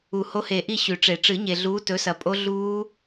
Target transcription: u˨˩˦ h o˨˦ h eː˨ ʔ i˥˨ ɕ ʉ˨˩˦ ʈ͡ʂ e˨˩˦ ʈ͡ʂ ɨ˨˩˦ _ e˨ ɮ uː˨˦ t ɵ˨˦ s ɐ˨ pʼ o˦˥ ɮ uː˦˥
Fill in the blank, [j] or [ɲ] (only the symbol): ɲ